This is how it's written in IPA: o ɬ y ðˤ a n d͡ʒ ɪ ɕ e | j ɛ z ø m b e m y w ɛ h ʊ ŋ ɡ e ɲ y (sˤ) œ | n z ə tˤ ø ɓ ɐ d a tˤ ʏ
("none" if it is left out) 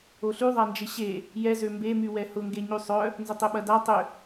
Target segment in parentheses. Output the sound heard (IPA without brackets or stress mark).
sˤ